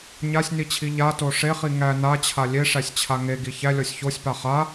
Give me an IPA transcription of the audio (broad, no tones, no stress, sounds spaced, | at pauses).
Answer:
ɲ a sʲ n i t͡ɕʰ i ʎ a t o ʂ e χ i ŋ æ n a t͡ɕʰ a lʲ e ʂ æ sʲ t͡ɕʰ a ŋ e ɡ i ç æ lʲ ɔ sʲ ç o sʲ p a χ a